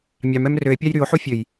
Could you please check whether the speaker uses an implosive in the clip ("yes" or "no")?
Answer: no